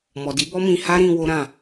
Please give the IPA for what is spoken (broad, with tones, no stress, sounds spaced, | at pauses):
m ɔ˨ d i˨˦ b ɔ˦ m ĩ˧ h a˦ ɾ ĩ˧ w o˦ ɾ ã˦˨